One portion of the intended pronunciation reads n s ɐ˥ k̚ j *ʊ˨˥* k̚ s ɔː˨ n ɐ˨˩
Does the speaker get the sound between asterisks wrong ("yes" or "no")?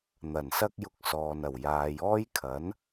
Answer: yes